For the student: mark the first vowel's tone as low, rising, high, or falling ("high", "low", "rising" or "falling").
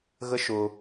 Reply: high